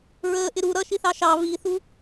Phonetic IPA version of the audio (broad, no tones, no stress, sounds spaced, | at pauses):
ɹ əː ʔ ɪ ɾ u ɾ ʌ ʃ i θ ɑ ʃ ɑ β i θ u